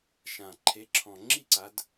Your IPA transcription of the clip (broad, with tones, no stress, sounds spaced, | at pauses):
ʃ ã˨˩ ǃʰ e˨˦ ǁʰ ɔ̃˨˩ ŋ͡ǁ i˥˧ ǀ a˨˦ d